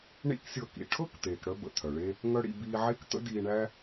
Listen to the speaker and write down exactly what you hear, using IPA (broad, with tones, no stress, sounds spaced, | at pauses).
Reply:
ɳ ḭ˥ k sʲ ɤ˧ k ḭ˩ ʈʰ ɤ˥ k t̪ eː˩ k ɽ œ˧ b ə̰˩ t̪ʰ œ˩ ɭ e˥ | ŋ œ˥ ɽ ḭ˧ b iː˧ ʕ e˥ k t̪ ə̰˥ d iː˧ ɳ æ˥